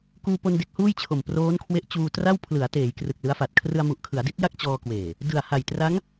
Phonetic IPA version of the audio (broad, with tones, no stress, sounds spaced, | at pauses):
k uː˧ p o˧ n d e˦˥ k̚ h uː˥˩ j t͡ɕʰ o˨˩ m p r oː˦˥ n kʰ w e˦˥ ʔ t͡ɕ uː˧ t r a˥˩ w pʰ l ɯ˩˦ a̯ t eː˩˦ j k r ɯ˨˩ k̚ l ɯ˦˥ a̯ f a˨˩ t̚ kʰ r ɯ˧ a̯ m u˨˩ ʔ kʰ ɯ˩˦ a̯ d i˦˥ t̚ j a˥˩ k̚ t͡ɕ ɔː˧ k w eː˨˩ | d ɯ˨˩ a̯ h a˨˩ j t r a˦˥ ŋ